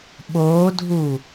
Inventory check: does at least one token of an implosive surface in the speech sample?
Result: yes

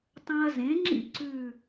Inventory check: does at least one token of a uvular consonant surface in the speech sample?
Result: no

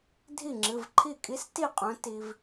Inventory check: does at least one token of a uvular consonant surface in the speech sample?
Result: yes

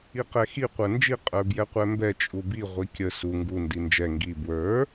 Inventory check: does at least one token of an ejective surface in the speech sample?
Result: yes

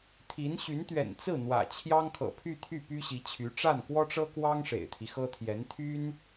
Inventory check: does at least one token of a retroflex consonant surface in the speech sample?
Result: yes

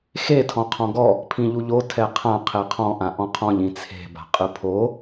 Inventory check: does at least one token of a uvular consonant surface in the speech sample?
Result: yes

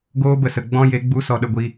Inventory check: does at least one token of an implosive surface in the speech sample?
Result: yes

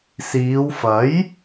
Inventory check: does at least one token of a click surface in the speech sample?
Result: no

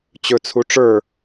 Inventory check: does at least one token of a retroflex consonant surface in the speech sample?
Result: yes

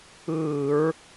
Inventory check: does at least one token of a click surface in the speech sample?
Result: no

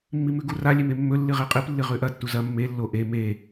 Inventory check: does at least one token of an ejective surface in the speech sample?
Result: yes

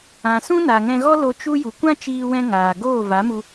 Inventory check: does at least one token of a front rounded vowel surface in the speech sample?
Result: no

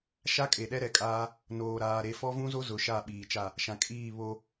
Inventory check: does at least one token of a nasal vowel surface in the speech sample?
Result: yes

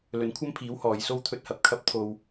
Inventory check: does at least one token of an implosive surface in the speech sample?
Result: no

